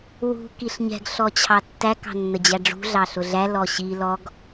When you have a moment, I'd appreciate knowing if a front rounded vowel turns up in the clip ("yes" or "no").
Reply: no